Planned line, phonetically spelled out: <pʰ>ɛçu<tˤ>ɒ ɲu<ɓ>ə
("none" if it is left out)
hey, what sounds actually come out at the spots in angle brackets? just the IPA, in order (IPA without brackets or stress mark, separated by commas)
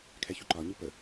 kʰ, ǃ, p